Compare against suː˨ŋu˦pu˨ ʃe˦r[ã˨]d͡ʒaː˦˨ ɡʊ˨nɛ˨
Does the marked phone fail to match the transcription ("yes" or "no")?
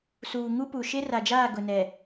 yes